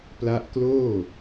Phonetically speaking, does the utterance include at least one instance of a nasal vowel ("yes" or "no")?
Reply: no